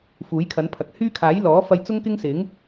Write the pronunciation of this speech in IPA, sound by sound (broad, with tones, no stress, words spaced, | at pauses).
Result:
fuː˨˥jkʰɐ˨˥n pʰɐ˨k̚ hyː˥kʰaː˨˥j lɔː˨˥fɐ˧jt͡sʊ˥ŋ kɪ˥ŋsɪ˨˥ŋ